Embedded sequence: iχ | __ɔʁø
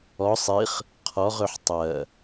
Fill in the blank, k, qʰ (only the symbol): qʰ